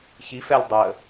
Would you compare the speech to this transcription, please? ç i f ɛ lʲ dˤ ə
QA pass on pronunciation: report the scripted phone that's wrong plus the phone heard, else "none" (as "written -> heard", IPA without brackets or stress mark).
none